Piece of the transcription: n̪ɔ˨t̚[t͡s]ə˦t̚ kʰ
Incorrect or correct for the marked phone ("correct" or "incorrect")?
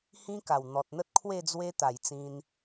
incorrect